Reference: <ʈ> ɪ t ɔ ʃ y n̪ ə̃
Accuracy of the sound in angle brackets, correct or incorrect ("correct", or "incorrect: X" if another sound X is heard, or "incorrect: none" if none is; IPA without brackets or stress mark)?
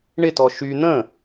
incorrect: ɳ